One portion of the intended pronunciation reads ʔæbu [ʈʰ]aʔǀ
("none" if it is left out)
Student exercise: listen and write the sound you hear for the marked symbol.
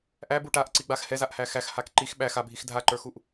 ʈ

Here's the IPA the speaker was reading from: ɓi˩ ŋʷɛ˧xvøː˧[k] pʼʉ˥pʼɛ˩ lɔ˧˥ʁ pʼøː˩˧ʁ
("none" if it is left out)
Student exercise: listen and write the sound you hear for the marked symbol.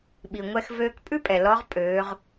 k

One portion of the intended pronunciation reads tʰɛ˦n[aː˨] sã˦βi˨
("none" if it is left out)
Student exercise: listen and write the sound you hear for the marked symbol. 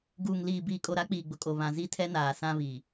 aː˨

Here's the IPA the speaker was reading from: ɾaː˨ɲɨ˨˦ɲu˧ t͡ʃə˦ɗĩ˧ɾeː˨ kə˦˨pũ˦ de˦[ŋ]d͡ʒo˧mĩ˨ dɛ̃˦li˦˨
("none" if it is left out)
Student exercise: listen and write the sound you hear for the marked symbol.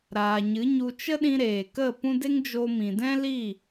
ŋ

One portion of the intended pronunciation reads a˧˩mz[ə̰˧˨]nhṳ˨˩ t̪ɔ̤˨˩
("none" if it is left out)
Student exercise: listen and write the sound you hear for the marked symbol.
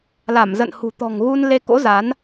ə̰˧˨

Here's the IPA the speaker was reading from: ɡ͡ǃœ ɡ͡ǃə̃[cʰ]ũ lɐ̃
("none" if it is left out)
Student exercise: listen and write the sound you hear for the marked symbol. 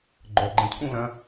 cʰ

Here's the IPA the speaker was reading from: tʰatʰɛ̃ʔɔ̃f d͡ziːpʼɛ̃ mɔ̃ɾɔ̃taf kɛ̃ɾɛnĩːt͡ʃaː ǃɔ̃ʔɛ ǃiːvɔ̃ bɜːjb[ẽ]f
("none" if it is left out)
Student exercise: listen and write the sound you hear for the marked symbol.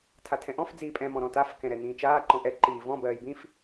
ĩ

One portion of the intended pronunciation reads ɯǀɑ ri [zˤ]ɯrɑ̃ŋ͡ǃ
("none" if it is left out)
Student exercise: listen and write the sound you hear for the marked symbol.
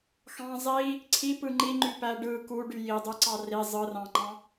zˤ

